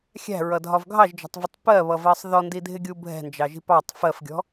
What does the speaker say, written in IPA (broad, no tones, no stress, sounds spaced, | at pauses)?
xʲ æ̤ ɹ ʌ dʱ ɒ v ɡʱ ɑ ʒ d͡ʒ ɔ̤ tˤ v ɪ tˤ p ɜ β ʌ v ɜ sˤ ð ɔ n d i dʱ ɪ ɡʲ u bʱ ɛ̤ n d͡ʒ ɑ ʒ i̤ p ɑ tˤ f ɜ f ɡʲ ɔ̤